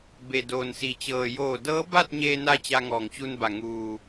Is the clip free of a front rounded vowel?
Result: yes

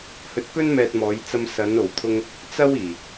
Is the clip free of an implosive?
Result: yes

